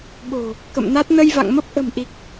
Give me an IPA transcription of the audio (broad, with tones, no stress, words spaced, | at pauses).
ɓo̤˨˩ | kə̰˧˨mna˦˥t̚ nə˧jva̰˧˨ŋmə˦˥p̚ ʔə̤˨˩mʔi˨˩k̚